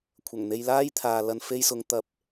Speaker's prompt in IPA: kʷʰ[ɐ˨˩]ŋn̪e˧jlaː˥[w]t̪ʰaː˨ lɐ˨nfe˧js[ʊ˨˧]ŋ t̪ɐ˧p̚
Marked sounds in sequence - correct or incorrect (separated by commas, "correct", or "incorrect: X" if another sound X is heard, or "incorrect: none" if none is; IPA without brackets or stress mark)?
correct, incorrect: j, correct